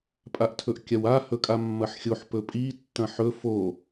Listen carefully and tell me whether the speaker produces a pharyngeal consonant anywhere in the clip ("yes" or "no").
yes